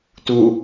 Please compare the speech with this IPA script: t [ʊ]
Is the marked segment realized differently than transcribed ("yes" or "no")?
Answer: yes